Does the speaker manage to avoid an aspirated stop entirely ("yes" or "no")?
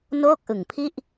no